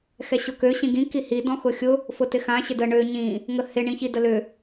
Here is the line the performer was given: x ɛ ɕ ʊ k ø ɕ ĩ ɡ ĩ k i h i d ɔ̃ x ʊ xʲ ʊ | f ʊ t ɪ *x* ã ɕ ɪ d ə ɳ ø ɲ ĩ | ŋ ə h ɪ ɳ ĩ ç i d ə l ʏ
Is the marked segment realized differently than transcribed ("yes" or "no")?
no